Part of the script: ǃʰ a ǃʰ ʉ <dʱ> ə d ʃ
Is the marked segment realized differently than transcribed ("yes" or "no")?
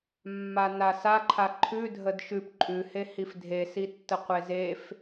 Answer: no